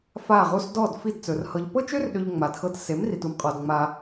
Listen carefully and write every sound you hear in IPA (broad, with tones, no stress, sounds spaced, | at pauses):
f a˦˨ ʁ u˦ s d ɔ˦˨ d f i˦˨ d t͡s ɵ˨ r h ɤ˨ ʎ p ɤ˦ t͡ʃ ø˦ r ɗ ø˧ ʎ ŋ͡m a˨ d x ɤ˧ t s e˨˦ m r i˨ t u˧ m qʼ ɔ˨ d ŋ͡m a˧